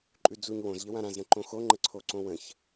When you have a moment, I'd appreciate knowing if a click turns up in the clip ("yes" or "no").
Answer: yes